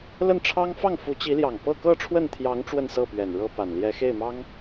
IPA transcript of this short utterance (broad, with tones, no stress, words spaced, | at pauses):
lə˥˩nʈ͡ʂʰɑ˥ŋfɑ˥˩ŋ fu˧˥t͡ɕi˧˥ljɑ˨˩ŋ pɤ˥˧kɤ˥˧ʈ͡ʂʰwə˥˩nt̪ʰjɑ˧˥ŋ ʈ͡ʂwə˥˧nsɤ˥˩pɥɛ˨˩n ɻɤ˥pa˨˩n ljɛ˧˥xe˥˩ɪ̯mɑ˥ŋ